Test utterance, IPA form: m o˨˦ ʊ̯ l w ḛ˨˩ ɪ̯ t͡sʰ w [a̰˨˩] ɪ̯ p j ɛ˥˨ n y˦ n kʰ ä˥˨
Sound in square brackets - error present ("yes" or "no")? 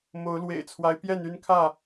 yes